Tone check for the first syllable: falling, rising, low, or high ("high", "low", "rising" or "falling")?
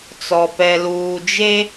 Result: low